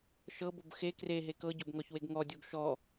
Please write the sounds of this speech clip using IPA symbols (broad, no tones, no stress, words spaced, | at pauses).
ʃɤbob xe kreɦe kɤɟobŋɔçweɡ ŋɔdʲoɡ ʃɔ